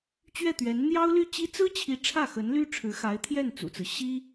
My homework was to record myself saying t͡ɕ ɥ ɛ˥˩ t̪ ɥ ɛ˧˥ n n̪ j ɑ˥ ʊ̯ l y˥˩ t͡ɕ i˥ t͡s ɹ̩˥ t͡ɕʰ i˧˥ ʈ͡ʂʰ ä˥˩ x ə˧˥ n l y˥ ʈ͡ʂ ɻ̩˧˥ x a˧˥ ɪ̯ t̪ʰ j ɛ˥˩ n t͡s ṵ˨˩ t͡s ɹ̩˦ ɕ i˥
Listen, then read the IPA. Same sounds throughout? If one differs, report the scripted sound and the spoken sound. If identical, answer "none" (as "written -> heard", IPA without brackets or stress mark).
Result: ʈ͡ʂ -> ʈ͡ʂʰ